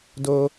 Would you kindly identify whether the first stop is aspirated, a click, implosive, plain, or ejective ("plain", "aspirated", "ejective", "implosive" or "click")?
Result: plain